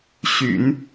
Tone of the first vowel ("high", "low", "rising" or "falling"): low